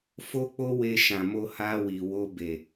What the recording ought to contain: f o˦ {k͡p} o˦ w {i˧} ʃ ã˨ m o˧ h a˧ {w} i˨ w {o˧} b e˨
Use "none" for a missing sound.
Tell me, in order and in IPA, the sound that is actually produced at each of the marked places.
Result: k͡p, e˧, w, o˧

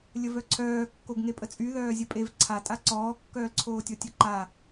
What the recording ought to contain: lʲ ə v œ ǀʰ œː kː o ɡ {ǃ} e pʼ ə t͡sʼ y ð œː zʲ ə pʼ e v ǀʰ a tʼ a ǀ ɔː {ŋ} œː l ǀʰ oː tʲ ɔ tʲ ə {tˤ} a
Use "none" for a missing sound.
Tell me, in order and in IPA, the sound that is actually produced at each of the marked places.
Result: ŋ, kː, ǃ

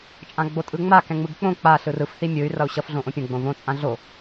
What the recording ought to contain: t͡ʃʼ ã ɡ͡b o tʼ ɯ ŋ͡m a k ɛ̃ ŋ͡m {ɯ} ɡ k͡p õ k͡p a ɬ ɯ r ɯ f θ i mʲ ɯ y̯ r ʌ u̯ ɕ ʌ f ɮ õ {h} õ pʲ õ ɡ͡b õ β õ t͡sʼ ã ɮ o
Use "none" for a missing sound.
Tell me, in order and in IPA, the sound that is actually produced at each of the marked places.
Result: ɯ, ʔ

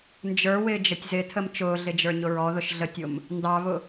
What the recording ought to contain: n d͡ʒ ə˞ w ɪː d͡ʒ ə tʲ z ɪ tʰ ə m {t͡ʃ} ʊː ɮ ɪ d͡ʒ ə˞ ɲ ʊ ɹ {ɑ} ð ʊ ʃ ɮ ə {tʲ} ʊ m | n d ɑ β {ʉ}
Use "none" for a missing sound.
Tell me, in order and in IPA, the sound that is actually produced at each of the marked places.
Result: t͡ʃ, ɔ, tʲ, ʊ

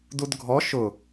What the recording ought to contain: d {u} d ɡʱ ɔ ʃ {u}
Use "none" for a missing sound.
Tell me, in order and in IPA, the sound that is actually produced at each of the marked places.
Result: u, ʊ

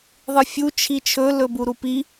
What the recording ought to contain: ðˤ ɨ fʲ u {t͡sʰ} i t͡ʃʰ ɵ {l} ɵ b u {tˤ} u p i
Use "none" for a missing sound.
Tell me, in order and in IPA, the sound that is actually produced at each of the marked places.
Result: t͡ʃʰ, l, ɾ

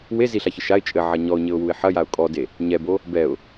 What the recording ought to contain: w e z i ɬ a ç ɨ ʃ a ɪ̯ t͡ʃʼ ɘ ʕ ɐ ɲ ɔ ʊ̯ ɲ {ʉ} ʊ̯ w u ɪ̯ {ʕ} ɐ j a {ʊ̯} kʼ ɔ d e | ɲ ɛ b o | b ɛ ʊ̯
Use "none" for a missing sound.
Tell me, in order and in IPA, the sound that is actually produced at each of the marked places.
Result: ɘ, ħ, ʊ̯

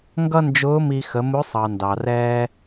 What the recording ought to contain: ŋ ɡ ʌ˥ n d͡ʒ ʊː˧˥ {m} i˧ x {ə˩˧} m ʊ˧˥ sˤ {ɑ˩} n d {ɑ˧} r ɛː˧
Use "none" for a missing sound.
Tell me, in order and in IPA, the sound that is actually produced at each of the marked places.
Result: m, ə˩˧, ɑ˩, ɑ˩

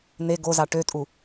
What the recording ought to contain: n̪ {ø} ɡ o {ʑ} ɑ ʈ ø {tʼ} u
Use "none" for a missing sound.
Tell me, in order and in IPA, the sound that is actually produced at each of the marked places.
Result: e, z, tʼ

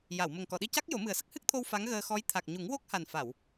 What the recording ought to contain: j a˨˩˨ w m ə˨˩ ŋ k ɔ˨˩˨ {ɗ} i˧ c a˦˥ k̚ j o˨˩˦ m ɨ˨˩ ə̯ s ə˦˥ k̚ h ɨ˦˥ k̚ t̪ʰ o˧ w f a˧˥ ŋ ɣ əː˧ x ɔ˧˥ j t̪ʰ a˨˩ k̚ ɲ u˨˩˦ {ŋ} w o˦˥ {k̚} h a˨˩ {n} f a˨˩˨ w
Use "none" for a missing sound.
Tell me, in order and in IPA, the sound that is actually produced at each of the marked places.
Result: ɗ, ŋ, k̚, n

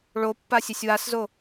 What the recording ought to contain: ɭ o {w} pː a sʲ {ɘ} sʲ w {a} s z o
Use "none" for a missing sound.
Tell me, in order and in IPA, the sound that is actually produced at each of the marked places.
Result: none, ɛ, a

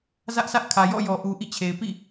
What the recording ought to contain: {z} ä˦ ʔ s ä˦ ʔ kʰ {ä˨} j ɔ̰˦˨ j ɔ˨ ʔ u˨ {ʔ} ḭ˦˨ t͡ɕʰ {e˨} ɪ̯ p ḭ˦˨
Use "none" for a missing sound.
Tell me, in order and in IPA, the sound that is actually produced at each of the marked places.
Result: z, ä˨, ʔ, e˨

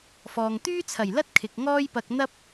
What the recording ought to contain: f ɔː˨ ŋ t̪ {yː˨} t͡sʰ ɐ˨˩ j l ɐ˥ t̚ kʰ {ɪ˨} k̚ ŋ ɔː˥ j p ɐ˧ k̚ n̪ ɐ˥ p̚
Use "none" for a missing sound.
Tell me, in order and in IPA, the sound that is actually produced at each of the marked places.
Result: yː˥, ɪ˨

